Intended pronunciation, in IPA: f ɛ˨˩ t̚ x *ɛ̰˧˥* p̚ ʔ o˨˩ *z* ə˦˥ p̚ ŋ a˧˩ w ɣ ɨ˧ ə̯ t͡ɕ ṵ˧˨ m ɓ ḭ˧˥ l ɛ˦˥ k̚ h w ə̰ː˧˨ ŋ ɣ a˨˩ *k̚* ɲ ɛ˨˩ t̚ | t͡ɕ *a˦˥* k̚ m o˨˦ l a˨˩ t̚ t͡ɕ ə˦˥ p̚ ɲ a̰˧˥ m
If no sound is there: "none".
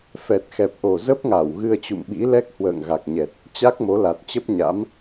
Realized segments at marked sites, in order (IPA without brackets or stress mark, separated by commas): ɛ˨˩, z, k̚, a˦˥